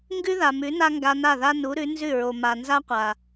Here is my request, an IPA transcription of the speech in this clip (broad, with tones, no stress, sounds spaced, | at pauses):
ŋ ɡ ʉ˦ ð a˨ m ʉ˨˦ n a˦ ŋ ɡ a˧ n a˦˨ ð a˦ n u˨˦ ɾ ʉ˨˦ n z ʉ˦˨ ɹ o˨ m a˨ n z a˦ qʷ a˨